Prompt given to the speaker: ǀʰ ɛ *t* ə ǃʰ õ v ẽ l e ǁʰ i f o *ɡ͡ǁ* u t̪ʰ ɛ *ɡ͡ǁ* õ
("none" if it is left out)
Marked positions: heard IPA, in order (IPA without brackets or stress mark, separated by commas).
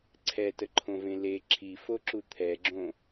t, ǁ, ɡ͡ǁ